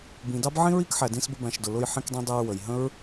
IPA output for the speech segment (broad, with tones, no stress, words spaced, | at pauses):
bĩ˨dɑ˦b ʕĩ˦ɹi˦kħæ˨ dĩ˧sbə˧bæ̃˨ʃdʊ˨ lʊ˧jħĩ˧kdˤĩ˧dˤæ˧ɹ wə˨j ɦə̃˦ɹ